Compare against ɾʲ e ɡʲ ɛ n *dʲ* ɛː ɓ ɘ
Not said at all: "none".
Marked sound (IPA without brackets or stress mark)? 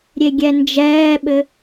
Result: d͡ʒ